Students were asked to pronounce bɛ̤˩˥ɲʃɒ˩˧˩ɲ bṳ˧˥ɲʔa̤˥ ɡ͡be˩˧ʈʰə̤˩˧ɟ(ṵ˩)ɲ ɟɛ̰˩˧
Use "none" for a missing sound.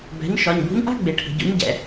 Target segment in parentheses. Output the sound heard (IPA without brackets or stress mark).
ṵ˩˥